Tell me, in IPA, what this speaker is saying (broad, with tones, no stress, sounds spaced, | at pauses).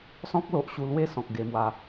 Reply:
s ɔ̃˦ k̚ l o˨ ʔ ɕ u˧ l w e˥˧ s ɔ̃˨ k̚ ɡ e˧ m w a˧